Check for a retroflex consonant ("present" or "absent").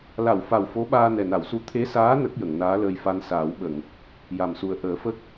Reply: absent